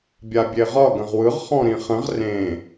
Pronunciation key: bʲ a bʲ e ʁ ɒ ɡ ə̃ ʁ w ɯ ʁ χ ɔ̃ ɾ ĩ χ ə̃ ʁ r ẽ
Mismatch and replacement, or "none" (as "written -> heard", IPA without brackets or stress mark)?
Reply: none